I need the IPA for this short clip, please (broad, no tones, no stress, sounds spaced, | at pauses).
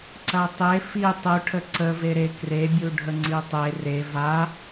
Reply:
ǀ ɐ tˤ e f i tˤ u ʈʰ ə ǀ ə v e ɾ e k r e bʲ u ɖʱ ə ŋ͡ǀ i tˤ e r e v a